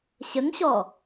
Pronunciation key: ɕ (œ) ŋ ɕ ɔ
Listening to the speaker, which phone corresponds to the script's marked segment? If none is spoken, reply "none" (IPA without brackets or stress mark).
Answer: ə